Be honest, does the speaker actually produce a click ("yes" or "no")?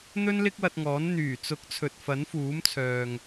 no